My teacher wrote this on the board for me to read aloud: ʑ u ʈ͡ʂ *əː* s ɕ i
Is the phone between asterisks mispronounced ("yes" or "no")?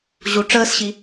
no